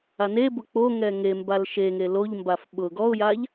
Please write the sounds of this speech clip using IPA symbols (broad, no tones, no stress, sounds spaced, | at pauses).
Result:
a n e b ʊ k͡p o ŋ ɛ ŋ e m b a l ʃ e ŋ e l o ʎ m b a f ɓ ʊ ɡ ɔ ʊ̯ j a ʎ